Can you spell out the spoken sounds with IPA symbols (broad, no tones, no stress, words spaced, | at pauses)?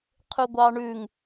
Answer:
qʰʉɡʷɑɳʉŋ